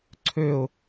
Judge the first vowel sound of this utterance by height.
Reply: mid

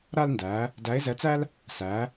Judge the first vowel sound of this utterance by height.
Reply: low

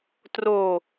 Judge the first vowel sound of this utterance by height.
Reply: mid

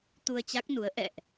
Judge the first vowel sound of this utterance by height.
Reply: high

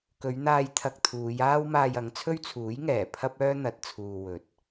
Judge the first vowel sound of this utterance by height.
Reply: mid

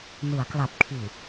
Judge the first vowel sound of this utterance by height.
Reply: high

